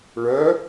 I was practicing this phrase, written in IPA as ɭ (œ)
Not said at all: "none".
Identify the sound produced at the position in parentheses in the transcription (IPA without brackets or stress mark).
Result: œ